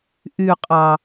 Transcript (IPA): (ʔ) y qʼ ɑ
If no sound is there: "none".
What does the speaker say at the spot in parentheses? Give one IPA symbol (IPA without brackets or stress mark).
ʔ